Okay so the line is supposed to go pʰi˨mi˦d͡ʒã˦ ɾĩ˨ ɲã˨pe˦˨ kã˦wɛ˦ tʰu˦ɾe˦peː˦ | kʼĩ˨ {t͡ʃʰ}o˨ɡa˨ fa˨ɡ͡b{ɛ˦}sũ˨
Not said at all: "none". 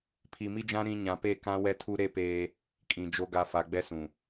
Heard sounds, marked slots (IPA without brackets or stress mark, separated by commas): d͡ʒ, ɛ˦